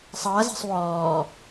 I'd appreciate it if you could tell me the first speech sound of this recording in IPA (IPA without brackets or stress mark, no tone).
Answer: sˤ